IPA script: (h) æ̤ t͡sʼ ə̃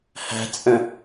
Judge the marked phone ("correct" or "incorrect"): correct